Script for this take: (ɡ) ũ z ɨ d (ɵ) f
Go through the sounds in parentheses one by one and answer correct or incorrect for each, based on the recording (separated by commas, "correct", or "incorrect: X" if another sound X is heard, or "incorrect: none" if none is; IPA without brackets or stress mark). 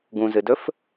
correct, correct